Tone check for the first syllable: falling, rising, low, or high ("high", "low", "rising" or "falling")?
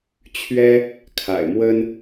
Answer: high